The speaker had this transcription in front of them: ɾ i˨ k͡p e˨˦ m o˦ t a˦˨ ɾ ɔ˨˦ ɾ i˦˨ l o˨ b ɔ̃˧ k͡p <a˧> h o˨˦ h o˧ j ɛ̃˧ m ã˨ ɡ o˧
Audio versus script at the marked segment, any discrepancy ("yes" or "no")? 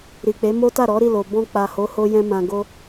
yes